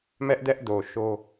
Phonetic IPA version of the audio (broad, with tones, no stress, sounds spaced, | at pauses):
m ɛ˦ ʔ d ɛ˦ ʔ d o˨ ʃ o˦